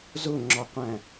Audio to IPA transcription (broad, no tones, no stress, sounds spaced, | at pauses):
z ʊ ŋ͡ǁ ɒ qʷ æ̃